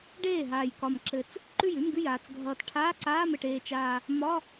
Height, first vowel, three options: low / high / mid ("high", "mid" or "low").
mid